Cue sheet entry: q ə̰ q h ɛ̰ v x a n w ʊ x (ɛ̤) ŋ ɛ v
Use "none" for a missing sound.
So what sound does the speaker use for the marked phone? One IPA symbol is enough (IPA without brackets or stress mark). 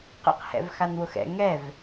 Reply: ɛ̰